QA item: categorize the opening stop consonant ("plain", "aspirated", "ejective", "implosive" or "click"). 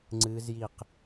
click